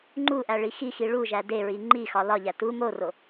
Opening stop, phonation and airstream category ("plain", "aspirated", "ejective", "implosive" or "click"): click